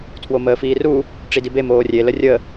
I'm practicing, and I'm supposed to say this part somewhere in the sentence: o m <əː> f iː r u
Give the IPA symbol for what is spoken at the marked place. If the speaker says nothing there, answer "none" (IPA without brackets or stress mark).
əː